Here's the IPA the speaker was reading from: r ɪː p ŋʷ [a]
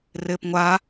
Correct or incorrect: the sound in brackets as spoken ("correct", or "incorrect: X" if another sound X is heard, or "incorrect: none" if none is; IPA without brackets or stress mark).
correct